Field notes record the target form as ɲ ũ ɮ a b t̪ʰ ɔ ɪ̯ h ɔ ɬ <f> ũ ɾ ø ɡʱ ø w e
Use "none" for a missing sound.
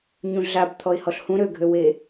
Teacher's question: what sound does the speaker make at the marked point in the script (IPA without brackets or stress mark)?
h